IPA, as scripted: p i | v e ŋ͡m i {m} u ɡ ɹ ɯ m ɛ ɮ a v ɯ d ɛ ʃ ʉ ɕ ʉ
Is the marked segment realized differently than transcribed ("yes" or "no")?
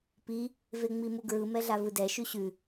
no